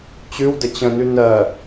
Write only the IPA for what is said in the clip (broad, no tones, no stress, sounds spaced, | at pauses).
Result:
t͡ɕ ʉ w d ə t͡ɕ ə̃ n ʉ n ɜ